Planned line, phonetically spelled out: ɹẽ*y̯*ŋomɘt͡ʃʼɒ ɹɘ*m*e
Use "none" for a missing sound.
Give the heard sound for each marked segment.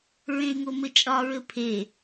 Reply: y̯, pʰ

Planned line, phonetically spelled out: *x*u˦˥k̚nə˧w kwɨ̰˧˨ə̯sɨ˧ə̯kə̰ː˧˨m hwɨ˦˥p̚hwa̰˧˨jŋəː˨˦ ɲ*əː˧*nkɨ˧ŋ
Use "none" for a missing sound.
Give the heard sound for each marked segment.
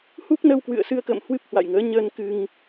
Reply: h, əː˧

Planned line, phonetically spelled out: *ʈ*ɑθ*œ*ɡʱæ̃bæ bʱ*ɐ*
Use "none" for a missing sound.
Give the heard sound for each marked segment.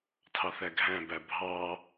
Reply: tʰ, æ, ɑ

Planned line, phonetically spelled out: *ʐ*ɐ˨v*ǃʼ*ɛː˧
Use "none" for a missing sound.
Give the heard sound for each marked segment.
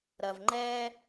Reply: ɾ, ŋ͡ǃ

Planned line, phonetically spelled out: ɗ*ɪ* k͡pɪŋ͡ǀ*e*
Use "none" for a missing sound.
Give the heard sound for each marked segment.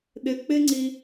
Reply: ɪ, i

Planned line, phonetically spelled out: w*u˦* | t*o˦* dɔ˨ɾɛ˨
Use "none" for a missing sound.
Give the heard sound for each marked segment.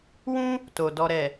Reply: ũ˦, o˨

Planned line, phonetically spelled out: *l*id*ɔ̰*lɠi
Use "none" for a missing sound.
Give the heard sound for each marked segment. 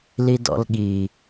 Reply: l, ɔ̰

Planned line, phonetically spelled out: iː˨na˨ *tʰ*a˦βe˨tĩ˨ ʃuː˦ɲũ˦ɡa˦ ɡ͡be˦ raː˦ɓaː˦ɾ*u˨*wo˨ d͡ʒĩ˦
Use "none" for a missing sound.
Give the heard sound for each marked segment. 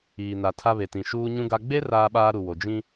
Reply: tʰ, u˨

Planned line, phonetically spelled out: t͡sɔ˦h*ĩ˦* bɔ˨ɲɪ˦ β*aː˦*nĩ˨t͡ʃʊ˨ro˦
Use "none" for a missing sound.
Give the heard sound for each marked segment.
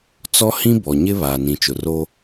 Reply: ĩ˦, aː˨

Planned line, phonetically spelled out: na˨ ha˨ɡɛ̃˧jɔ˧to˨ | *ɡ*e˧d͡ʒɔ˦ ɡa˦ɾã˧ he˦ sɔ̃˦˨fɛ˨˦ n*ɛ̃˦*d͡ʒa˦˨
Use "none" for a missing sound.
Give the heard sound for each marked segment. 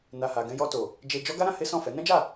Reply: d͡ʒ, ɛ̃˦

